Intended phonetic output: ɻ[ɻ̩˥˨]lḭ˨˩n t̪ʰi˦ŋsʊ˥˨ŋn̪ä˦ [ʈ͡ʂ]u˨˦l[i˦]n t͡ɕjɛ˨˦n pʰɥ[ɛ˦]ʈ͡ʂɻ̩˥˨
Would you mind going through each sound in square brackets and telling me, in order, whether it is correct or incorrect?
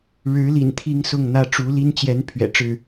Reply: incorrect: ɻ̩˨˦, correct, correct, incorrect: ɛ̰˨˩

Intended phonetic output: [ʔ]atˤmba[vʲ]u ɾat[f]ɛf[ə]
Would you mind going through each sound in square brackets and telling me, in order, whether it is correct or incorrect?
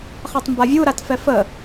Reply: incorrect: χ, correct, correct, correct

